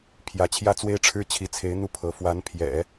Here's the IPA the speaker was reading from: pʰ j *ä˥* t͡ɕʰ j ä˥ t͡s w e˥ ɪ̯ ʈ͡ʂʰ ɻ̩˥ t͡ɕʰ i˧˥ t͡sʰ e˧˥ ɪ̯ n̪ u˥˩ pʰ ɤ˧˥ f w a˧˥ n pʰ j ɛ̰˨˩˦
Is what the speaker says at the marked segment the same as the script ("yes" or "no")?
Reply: no